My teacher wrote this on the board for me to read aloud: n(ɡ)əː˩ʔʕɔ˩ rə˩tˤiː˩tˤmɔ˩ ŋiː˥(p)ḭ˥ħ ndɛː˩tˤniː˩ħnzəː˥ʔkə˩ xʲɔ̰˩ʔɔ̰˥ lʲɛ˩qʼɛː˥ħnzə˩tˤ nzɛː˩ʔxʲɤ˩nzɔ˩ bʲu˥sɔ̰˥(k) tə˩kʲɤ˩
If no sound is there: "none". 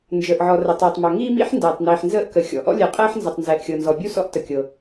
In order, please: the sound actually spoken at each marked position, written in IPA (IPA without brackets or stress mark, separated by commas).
d͡ʒ, m, ʔ